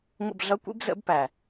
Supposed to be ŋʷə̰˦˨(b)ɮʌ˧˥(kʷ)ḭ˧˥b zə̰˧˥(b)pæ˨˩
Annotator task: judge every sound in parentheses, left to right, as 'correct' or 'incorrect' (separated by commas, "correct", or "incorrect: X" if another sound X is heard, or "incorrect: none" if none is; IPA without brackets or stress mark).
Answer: correct, correct, correct